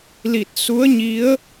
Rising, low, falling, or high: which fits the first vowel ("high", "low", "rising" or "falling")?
low